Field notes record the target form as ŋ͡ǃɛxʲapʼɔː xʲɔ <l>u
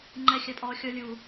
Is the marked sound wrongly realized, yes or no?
yes